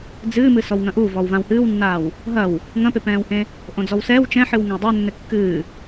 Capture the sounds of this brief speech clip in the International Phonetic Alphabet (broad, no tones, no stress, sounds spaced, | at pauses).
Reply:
d͡z ɨː m ɨ s ɔ w ŋ ɐ̃ ʔ u v ɔ w v ã w h ɨː w nː aː w | ɦ ɐ w | ŋ ɐ̃ p e p ɛ̃ː w h ẽ | ʔ õ d͡z ɔ w s ɛ w t͡ʃ ɛ̃ ħ ɨ w ŋ ɐ̃ w dˤ ɛ nː ɘ kː ɨː